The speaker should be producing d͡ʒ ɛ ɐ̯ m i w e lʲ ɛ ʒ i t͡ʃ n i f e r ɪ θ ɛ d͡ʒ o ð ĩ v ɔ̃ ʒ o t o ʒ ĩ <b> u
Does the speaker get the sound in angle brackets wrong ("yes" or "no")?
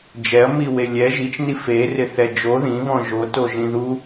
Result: yes